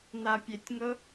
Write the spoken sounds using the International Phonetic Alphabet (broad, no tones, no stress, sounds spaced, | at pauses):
n̪ a pʲ e tʲ ŋ ɤ